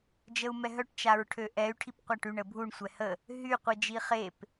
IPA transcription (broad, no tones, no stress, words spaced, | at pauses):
d͡ʒəu̯mɛɦœʈ t͡ʃaɹʈʰøʔɛy̯ ʈʰipqʷaʈyɳ əbʱuɳ sʷɛhə | ɦy qʷid͡ʒiχep